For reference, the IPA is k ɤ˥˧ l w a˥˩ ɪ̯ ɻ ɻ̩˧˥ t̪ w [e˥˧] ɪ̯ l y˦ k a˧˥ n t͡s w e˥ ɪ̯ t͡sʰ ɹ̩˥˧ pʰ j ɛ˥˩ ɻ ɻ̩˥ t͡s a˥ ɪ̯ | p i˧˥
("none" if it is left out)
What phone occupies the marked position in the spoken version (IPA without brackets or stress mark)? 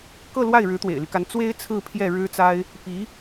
ḛ˨˩